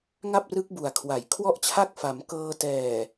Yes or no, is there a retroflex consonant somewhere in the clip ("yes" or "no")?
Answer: no